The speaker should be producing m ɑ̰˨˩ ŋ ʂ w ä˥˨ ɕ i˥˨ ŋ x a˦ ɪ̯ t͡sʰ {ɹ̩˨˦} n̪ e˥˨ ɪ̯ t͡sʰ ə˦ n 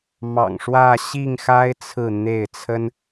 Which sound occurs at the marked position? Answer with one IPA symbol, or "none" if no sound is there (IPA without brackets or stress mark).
ɹ̩˥˨